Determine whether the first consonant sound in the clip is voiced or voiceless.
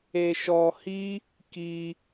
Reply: voiceless